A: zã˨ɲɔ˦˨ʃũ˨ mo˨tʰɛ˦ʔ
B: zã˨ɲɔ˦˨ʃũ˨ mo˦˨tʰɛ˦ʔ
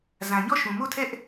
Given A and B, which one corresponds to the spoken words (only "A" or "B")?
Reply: B